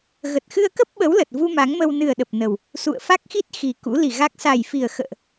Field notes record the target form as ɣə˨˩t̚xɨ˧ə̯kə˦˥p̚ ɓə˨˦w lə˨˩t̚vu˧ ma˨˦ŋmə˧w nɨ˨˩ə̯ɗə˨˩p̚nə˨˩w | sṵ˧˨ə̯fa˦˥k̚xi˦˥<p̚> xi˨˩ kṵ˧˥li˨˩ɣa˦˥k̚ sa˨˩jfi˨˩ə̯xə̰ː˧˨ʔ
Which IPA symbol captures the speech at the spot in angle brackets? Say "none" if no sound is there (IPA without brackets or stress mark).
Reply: t̚